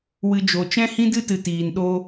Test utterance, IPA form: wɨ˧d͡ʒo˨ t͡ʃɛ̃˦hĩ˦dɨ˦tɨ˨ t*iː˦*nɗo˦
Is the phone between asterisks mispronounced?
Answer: yes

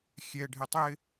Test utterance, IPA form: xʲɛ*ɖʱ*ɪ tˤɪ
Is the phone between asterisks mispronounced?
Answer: no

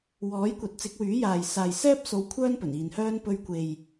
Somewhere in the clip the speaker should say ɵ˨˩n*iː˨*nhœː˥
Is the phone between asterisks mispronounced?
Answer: no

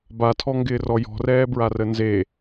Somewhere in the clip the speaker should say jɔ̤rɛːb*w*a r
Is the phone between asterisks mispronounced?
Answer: yes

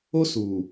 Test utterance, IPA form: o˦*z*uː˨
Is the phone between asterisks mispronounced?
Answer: yes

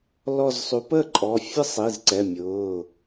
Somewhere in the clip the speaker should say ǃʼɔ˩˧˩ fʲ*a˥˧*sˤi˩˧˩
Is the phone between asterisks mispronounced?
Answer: yes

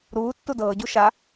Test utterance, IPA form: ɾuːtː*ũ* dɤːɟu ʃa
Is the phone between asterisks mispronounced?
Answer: yes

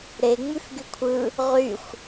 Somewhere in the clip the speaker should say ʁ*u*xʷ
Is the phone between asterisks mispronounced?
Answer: yes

